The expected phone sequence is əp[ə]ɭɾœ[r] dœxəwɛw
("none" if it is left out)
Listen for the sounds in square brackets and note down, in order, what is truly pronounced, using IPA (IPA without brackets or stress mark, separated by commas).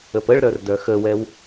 ə, r